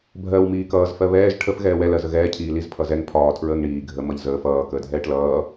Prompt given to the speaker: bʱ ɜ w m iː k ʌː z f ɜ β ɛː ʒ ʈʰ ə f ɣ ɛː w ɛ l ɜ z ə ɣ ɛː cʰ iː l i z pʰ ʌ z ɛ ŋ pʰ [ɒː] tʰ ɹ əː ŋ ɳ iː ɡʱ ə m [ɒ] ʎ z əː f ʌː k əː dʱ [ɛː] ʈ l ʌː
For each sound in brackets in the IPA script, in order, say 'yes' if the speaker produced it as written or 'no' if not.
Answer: yes, no, yes

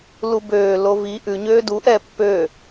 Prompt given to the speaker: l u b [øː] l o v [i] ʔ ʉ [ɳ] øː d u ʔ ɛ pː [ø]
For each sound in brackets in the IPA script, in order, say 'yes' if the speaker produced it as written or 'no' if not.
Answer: yes, yes, no, yes

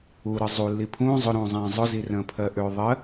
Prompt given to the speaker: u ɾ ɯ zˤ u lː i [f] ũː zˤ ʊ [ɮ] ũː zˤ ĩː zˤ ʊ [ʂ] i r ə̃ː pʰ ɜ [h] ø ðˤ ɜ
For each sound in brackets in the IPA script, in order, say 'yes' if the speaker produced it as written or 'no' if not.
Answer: no, no, no, no

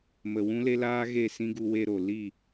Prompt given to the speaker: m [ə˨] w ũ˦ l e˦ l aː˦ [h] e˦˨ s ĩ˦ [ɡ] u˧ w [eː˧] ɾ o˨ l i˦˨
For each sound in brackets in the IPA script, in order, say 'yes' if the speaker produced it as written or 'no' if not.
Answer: yes, no, yes, no

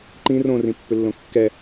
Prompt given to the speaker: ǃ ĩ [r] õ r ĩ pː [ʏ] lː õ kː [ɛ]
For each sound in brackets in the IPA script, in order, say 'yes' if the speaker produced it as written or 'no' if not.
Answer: yes, yes, yes

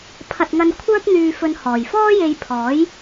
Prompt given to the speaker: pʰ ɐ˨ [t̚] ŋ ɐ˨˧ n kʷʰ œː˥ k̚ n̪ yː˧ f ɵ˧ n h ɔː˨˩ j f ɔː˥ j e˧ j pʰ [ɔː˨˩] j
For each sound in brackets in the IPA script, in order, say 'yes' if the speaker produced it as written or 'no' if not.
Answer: yes, no

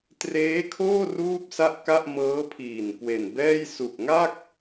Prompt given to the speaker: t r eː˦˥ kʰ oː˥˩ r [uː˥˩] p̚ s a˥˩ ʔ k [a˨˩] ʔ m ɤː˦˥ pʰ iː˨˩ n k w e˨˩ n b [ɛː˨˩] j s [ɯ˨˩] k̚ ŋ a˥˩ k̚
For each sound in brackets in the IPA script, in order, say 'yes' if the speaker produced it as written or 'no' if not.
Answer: yes, no, no, no

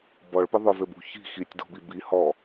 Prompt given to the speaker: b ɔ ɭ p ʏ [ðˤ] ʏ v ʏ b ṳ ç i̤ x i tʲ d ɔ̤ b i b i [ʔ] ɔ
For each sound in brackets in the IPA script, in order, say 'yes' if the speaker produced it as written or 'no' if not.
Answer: yes, no

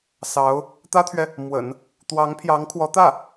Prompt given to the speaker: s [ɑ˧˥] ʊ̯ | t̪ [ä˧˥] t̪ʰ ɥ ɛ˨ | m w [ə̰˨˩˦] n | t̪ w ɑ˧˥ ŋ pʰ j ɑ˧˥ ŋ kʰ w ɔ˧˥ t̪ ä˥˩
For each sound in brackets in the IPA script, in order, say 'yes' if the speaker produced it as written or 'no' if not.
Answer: yes, no, yes

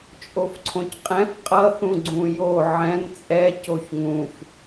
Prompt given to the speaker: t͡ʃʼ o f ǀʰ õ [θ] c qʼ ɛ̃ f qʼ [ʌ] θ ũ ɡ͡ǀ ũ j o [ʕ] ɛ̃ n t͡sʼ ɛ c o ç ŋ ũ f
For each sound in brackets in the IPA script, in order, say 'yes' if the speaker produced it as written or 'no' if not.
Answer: no, yes, yes

